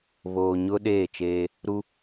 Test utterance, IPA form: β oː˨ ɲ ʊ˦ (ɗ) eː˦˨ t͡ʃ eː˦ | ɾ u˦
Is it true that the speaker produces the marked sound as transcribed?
yes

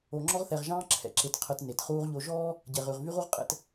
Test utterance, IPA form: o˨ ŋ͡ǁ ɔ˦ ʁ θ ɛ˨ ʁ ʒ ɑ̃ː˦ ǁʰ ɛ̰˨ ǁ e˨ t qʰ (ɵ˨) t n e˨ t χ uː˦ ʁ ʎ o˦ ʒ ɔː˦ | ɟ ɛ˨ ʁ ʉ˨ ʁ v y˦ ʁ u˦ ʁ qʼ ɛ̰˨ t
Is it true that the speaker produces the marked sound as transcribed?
no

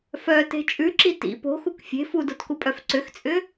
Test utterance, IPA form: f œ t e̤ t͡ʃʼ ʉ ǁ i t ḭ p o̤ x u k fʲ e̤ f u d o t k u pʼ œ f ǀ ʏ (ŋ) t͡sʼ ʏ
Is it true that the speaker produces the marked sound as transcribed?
no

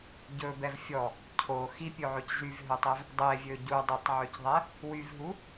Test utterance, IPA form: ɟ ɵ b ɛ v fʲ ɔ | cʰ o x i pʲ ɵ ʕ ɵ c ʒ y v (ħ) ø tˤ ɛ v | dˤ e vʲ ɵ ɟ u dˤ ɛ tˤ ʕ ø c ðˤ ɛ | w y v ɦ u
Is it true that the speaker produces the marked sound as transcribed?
no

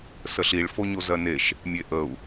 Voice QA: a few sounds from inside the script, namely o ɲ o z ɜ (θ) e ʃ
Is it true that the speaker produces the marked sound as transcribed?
no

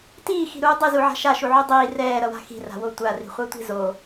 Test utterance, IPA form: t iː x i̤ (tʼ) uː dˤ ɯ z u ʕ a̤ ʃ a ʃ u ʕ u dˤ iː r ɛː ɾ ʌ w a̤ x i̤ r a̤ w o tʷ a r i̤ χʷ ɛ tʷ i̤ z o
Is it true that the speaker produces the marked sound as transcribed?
no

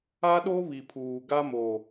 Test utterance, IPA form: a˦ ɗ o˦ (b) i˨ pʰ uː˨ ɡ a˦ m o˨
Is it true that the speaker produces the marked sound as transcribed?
no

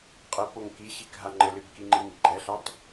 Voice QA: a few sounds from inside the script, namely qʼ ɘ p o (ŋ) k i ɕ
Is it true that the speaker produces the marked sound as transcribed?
yes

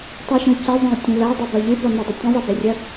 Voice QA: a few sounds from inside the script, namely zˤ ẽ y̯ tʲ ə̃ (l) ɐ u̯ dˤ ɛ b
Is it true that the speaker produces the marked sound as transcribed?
yes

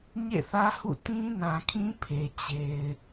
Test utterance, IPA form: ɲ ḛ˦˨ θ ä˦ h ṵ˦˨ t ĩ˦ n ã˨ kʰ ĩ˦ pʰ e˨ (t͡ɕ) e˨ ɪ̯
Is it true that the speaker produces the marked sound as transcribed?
yes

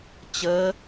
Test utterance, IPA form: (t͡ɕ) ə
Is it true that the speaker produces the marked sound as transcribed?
yes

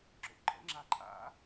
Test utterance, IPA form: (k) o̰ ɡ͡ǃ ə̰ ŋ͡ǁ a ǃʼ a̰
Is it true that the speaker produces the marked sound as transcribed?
no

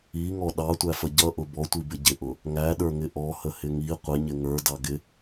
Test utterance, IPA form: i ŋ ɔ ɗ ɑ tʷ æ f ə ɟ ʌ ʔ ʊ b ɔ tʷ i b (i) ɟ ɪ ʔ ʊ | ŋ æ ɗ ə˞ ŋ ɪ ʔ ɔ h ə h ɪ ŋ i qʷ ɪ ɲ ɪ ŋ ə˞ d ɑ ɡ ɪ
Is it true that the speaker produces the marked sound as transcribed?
no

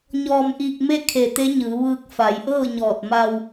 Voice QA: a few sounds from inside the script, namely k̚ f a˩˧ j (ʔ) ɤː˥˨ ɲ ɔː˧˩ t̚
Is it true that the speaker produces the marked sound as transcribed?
yes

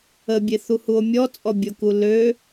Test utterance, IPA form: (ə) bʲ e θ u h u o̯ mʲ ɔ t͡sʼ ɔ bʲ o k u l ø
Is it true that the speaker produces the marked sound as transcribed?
yes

